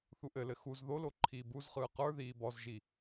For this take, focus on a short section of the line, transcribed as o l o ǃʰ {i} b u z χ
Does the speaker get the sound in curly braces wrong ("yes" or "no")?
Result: yes